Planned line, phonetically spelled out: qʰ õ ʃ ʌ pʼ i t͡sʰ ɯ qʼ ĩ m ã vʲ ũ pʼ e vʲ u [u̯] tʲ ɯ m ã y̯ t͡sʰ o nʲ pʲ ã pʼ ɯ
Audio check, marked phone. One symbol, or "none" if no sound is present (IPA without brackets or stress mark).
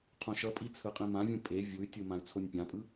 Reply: y̯